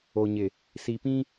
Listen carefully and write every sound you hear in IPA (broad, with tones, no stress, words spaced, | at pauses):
o˨ ɲɪ˨ | si˨pĩ˦